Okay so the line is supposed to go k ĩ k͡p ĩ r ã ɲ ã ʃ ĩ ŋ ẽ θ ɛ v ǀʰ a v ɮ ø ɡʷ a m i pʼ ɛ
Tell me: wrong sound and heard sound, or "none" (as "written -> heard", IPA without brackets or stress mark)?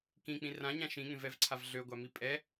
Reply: θ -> v